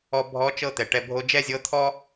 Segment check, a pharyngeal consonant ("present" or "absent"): absent